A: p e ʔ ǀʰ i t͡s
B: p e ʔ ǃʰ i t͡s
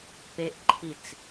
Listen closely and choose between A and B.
B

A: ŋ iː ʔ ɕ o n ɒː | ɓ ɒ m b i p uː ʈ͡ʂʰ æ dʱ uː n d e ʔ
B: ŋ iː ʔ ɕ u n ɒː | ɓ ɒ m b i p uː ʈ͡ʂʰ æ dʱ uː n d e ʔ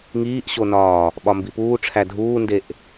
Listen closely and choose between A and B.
A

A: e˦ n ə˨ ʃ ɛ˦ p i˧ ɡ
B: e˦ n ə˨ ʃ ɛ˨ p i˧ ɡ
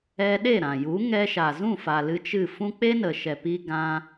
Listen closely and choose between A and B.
B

